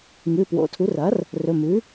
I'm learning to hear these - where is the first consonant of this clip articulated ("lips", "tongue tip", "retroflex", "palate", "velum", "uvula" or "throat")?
velum